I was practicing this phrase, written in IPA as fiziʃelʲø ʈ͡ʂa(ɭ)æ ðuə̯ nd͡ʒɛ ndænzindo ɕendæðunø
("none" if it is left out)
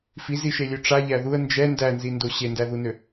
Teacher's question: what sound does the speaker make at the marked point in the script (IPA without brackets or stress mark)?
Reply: ʎ